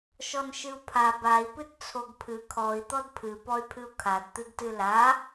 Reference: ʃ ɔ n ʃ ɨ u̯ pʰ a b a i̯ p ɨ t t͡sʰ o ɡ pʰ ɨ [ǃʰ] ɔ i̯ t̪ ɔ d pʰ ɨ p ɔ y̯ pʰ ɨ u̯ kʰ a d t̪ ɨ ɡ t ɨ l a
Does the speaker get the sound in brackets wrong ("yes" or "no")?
yes